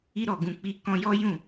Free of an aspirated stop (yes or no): yes